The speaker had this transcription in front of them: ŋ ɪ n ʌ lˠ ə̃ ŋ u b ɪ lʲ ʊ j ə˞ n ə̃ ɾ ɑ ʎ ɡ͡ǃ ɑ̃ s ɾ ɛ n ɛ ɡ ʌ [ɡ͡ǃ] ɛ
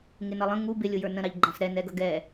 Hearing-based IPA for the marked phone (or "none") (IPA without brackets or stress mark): ɡ